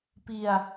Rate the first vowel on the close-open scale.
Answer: close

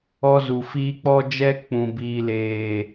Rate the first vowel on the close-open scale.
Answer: mid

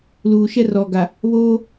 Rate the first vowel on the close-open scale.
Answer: close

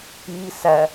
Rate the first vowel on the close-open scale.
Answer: close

